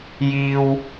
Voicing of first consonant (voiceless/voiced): voiced